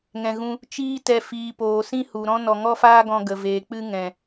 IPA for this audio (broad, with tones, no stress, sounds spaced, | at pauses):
ŋ ɛ̃˨ ɣ ũ˧ | t͡ʃ iː˧ t ɛ˨ f iː˨ p oː˨ s ĩ˦ h u˨ ɾ ɔ̃˦ n ɔ˨ ŋ ɔ˦ f aː˦ ɡ ɔ̃˧ ɡ ə˨ v eː˨ k͡p ɨ˦ ŋ ɛ̃˨